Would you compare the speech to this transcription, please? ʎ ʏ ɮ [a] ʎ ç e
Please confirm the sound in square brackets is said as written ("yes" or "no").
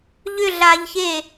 no